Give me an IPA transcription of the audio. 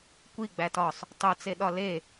kʷ i ɡ͡b æ t ɒ sˤ | tˤ o t͡s e ɗ ɒ l e

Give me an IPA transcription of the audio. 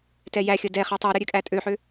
t ɛ j æ xʲ ə d ɛ χ ɛ tˤ u ɾ ə ɾʲ ø kʼ æ tʼ ø ħ ø

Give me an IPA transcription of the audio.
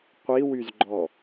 qʷ i w y z ɡ͡ǃ ɔ

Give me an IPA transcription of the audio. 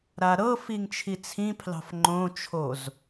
ɾ a ɾ ɤ f i ŋ t͡ʃʰ i t͡sʰ ĩ pʰ l ɑ̤ f ŋ͡ǃ õ t͡ʃʰ o z

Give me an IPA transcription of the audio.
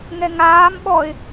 ŋ ɛ ŋ aː m ɓ ɔ ɪ̯

